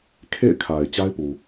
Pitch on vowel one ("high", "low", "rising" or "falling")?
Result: falling